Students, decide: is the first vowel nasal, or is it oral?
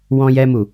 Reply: nasal